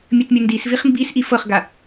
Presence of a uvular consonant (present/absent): present